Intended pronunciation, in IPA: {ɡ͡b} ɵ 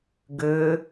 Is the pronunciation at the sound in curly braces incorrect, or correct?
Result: incorrect